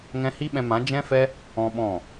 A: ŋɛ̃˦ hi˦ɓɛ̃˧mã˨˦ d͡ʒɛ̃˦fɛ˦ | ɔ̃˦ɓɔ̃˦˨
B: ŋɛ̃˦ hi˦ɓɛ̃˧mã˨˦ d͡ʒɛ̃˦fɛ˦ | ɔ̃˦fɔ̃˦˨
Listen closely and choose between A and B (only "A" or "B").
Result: A